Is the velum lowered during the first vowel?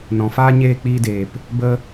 yes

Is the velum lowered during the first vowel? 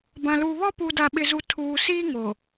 yes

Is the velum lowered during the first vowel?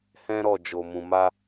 yes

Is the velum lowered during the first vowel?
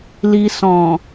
no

